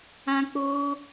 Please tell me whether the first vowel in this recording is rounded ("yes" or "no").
no